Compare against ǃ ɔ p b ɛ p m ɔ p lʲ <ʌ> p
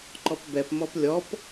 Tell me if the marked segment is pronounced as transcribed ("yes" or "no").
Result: no